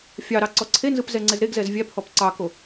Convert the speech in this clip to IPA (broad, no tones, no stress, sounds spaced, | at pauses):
fʲ ɑ ɾ ɑ ǀ ɔ ǀʰ e n z ɯ p z ɛ ŋ͡ǀ ɛ z ɾ e ɡ z ɛ z vʲ æ p h ɔ p ǀ ɑ k o